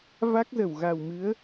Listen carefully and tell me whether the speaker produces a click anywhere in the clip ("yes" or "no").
no